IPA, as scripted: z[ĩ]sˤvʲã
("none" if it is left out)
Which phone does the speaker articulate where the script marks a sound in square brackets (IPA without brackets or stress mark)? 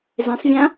ẽ